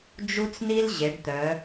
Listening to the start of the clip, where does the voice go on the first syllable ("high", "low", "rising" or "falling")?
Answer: high